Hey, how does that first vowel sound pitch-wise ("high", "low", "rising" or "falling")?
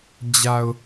low